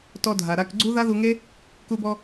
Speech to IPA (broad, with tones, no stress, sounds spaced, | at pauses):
t ɔ˧ dʱ a˨ ɾ a˧ k ɡ͡ǀ u˦ ð a˦ ð u˧ ŋ e˦ | k u˧ b ɔ˧